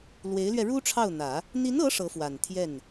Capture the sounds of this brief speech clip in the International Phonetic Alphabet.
l w e˧˥ ɪ̯ l ɥ ɛ˧ ɻ u˥ ʈ͡ʂʰ ɑ˥˩ ʊ̯ n̪ ä˨˩˦ | n̪ i˧˥ n ɤ˧˥ ʂ ɤ˧˥ f w a˨˩ n t̪ʰ j ɛ˥˩ n

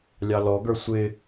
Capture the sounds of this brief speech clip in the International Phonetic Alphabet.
lʲ ɑ l ɔ ɡ ə˞ sʷ ɪ

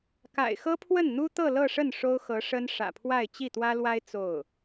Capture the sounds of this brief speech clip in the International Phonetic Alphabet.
k a̰˨˩ ɪ̯ x ɤ˥ pʰ w ə˥˩ n n̪ u˥ t̪ ɤ˥˧ l ɤ˥˧ ʂ ə˥˩ n ʂ o˥ ʊ̯ x ɤ˧˥ ʂ ə˥ n ʂ ä̰˨˩ pʰ w a˥˧ ɪ̯ t͡ɕ i˥˩ t̪ w ä˥ l w a˥ ɪ̯ t͡s o˥˩ ʊ̯

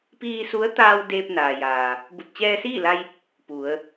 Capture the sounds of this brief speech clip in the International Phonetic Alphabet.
p iː˧ s u˧˥ ə̯ t̪ aː˧ w d eː˧ p̚ n aː˩ j aː˩ | b u˧˩ t̚ t͡ɕ ɛː˧ s iː˥˨ l a˧ j | p u˩˧ ə̯

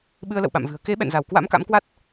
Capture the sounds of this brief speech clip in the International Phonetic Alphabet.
ɓ ɨ˧ ə̯ l ə̰˧˨ w ɓ a̰˧˨ m v ɨ̤˨˩ ə̯ k e˨˦ ɓ ɛ̰˧˨ n z a˧˩ w k w a̰˧˥ m k a̰˧˥ m k w a˦˥ t̚

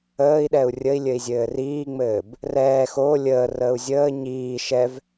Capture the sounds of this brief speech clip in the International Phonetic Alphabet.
əː i̯ ɗ ɛ u̯ rʲ ə i̯ lʲ ɘ i̯ zʲ ɘː r iː ŋ͡m ɘː b | r ɛː x o lʲ əː r əː u̯ zʲ əː ɲ iː ʃ ɛ v

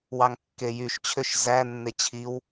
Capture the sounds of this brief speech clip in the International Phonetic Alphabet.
w ɑ ŋ kː e j y ʃ t͡ɕʰ ø ʃ z æ nː e t͡ɕʰ i w

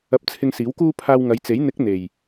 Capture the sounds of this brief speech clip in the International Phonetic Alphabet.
ɐ˧ p̚ t͡sʰ ɪ˧ ŋ s iː˨˥ w k uː˥ pʰ aː˧ w ŋ ɐ˨˧ j t͡s e˨˥ j n̪ ɪ˨˥ k̚ n̪ e˨˩ j

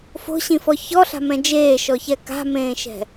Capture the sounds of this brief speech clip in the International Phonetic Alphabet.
f o̤ ɕ ĩ f ɔ ç ɔ ɬ a̤ m ɛ̃ d͡ʒ eː ʃ ɔ ç ɛ k a̤ m ẽː ʃ ɛ̤

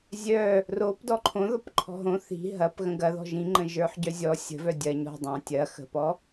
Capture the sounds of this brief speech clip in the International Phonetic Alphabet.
zʲ œ | r o p d ɔ ǃʰ õ ð ɔ p ǃʰ ɔ̤ ɦ õ θ i̤ ɦ ɐ p ɣ ə̃ ɡ ɐ ð ɔ̤ ʒ ĩ ŋ͡ǃ ə̃ ʒ ə˞ ħ ɟ œ zʲ ɔ sʲ ə̤ v œ dʲ ɐ ɲ ɔ̤ dˤ ɑ̃ tʲ ɐ x ə̤ p ɔ

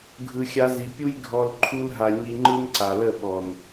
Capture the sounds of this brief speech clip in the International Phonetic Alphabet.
ɡʱ ɯ˨ xʲ a˧ z i˨ pʲ u˦ j ɡʱ ɔ˨ l ǃʰ u˧ l ɦ a˨ ɲ i˧ ŋ͡ǃ ɯ˦ n ǀ a˨ l ə˦˨ ɓ ɔ˨ n

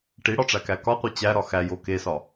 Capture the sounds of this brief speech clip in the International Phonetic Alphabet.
ʈ i ɽ ɒ ʈ͡ʂ æ k æ k ɒ qʷ e t͡ɕ æ ɾ ɒ x æ j o k e s ɒ

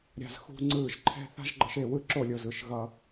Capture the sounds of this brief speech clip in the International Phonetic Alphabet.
ɾʲ a̤˧ z x ṳ˦ ŋ͡ǀ ɯ˦˨ ʒ ǃʰ ɛ̤˦ θ a̤˦ ʒ ɡ͡ǃ ʌ˧ ʃ e˦˨ w ɯ˦ ǁ o˦˨ lʲ o˨ z ɯ˨ ʃ ɣ ʌ˧

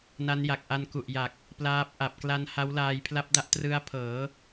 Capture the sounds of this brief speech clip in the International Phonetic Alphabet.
n a˦˥ n j a˨˩ k̚ ʔ a˧ n k u˨˩ ʔ j a˨˩ k̚ | p l aː˦˥ p̚ ʔ a˨˩ p̚ k l a˧ n h a˦˥ w l aː˧ j pʰ l a˦˥ p̚ d a˦˥ ʔ t r ɯ˦˥ a̯ pʰ ɤː˩˦

